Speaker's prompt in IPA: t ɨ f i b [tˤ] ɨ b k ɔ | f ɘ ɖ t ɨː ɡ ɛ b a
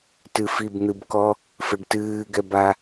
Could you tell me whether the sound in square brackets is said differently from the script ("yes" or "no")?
yes